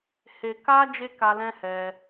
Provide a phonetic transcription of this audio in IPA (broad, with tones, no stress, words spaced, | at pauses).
he˨ka˧ d͡ʒe˦ka˧lɛ̃˦hɛ˧